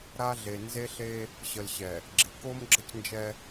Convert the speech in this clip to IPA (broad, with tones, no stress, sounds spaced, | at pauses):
ɾ a˦ ɮ e˨ n z e˦ ɬ e˦ | ɕ ə˨ l ɕ ɛ˨ | ɡ͡ǁ ɪ˨˦ k o˦ m ɡ͡ǁ ə˦ c n d͡ʒ ɛ˦